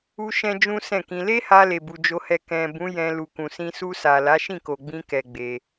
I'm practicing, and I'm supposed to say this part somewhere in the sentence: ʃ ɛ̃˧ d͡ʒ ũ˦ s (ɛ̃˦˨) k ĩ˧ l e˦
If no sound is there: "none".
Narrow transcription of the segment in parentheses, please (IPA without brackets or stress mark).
ɛ̃˦˨